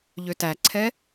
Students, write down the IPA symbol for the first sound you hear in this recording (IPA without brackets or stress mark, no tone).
ʎ